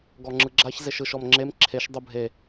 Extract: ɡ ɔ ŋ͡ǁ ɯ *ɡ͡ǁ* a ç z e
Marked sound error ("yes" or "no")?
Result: no